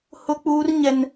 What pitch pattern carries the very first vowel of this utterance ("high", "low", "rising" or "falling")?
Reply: high